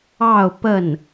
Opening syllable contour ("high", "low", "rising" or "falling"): falling